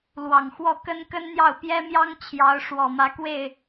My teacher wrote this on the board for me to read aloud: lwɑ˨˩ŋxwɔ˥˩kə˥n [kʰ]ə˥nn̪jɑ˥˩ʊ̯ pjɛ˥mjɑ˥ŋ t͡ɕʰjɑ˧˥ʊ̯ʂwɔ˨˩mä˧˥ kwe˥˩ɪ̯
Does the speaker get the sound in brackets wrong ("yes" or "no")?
yes